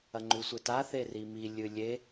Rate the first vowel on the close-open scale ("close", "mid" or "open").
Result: open